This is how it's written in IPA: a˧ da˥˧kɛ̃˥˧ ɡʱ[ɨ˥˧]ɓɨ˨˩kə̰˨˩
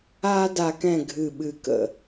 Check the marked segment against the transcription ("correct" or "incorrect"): incorrect